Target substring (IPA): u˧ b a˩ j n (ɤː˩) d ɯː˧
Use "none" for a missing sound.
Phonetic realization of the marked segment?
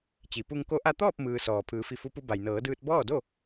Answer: ɤː˩˧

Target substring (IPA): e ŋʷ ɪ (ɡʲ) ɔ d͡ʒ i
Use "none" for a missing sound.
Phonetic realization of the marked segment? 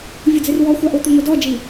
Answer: d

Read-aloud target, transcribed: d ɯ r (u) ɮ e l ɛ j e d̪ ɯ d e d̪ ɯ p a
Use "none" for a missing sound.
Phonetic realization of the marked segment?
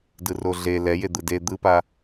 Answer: o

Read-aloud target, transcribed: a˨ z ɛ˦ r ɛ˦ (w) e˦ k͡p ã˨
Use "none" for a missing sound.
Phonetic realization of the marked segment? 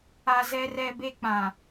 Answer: b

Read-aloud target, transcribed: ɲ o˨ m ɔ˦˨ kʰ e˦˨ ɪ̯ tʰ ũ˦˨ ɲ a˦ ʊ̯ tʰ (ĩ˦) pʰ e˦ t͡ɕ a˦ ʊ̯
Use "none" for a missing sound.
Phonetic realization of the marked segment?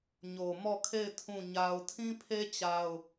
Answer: ĩ˦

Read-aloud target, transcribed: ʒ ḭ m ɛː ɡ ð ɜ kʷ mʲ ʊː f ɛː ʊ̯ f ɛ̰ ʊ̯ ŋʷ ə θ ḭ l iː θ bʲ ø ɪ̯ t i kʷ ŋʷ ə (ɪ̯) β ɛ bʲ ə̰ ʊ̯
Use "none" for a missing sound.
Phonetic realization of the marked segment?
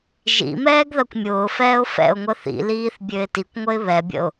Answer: ɪ̯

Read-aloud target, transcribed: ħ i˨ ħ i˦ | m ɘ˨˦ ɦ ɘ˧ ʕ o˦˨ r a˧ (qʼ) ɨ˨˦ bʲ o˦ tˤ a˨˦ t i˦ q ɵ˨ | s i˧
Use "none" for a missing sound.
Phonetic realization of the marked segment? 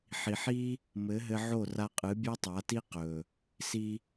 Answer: qʼ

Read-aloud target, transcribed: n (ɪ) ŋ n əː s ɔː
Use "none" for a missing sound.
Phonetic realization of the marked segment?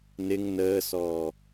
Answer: ɪ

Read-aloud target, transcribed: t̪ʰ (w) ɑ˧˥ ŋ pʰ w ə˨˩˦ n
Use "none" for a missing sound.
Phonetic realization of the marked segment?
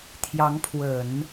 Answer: j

